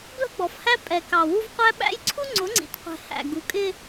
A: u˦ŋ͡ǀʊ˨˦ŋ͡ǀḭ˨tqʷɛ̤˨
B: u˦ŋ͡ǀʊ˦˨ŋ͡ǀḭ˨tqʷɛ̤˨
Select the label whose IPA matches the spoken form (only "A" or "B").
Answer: A